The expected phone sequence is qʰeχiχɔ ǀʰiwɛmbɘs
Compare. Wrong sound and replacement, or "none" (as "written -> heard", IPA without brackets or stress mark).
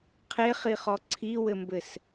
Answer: ɛ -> ɘ